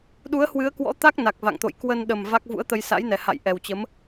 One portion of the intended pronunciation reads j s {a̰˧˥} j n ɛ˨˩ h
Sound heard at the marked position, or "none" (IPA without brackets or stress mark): a̰˧˥